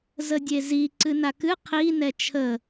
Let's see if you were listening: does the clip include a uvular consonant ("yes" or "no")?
yes